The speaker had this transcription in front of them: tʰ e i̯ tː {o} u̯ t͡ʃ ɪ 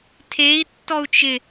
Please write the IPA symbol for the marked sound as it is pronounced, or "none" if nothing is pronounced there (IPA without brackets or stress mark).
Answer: ɔ